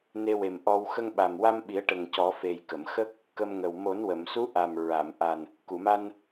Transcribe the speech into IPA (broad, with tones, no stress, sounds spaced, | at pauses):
n e˧ w e˨˩ m ʔ ɔ˧ w x ə˧ ŋ ɓ a˨˩ m w a˧ m ɓ i˨˩˦ ə̯ ʈ ə˨˩ ŋ c ɔ˨˩˦ f e˨˩ j k ə˨˩˨ m x ə˦˥ k̚ | k ə˧ m ŋ ə˨˩ w m o˨˩˦ n w ə˨˩˨ m s u˧˥ ʔ a˨˩ m ɹ a˨˩˨ m ʔ a˨˩ n | k u˨˩˨ m a˧ n